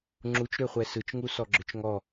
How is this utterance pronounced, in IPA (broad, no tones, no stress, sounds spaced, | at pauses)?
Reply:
ŋ͡ǁ u t͡ʃ ɾ ø χʷ ɛ s ɯ t͡ʃ ŋ u s ɔ ɡ͡ǁ ʏ t͡ʃ ŋ ɔ